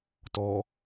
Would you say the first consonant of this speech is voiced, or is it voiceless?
voiceless